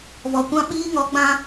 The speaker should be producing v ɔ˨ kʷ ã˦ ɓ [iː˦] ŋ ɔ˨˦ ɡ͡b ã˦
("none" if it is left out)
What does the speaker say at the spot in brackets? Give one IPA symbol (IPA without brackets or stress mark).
iː˦